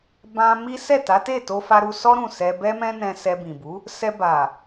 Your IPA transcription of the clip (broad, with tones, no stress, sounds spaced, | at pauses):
b ã˧ m i˦ s ɛ˦˨ t a˨˦ t e˦˨ t o˧ f a˦ ɾ u˦ s ɔ˦ ɾ ũ˦˨ s ɛ˧ b ɛ˦ m ɛ̃˦ n ɛ̃˧ s ɛ˧ b ĩ˨ b u˨˦ | s ɛ˧ b a˨